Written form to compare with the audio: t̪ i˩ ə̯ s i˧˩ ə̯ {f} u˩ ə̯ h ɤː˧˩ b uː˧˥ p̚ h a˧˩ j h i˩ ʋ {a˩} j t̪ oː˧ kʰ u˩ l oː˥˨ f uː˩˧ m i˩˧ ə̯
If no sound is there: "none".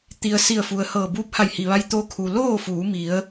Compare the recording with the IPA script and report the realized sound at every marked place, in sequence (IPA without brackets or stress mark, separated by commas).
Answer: f, a˧